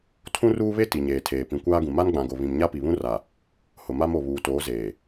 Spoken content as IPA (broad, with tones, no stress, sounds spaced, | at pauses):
tʰ ũ˦ r uː˦ β e˦ t i˨ ɲ eː˨ tʰ eː˨ p ĩ˨ kʷ aː˦ ɡ ũ˨ m a˦ n ɡ͡b ã˨ ɡ o˨ β ĩ˨ m ɲ a˦ p i˨ β ũ˦ r a˨ | h ʊ˨ m a˦ m o˨ β uː˨ t oː˨˦ z eː˨